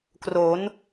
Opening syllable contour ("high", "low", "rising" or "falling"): rising